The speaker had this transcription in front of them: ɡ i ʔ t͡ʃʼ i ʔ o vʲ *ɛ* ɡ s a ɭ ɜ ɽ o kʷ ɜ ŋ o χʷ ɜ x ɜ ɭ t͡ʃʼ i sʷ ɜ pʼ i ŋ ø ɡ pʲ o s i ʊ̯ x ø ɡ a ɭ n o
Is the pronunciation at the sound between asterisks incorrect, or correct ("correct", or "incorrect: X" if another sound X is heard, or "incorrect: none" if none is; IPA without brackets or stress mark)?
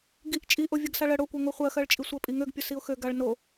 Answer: incorrect: ɜ